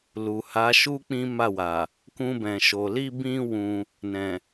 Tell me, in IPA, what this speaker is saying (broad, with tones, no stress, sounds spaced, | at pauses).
l u˨ h a˨˦ ʃ u˦ k͡p ĩ˦ m a˦˨ w a˨ | k ũ˧ b ɛ̃˨ ʃ o˨ l i˧ b ĩ˧ w ũ˧ | n ɛ̃˨